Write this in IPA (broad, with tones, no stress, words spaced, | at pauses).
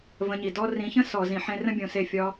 və̃˧ɲi˨dɔ˦ rĩ˨˦çə̃˦sɔ˨ zĩ˨ħẽ˧ rə̃˦bʲõ˨se˦˨ fʲɒ˧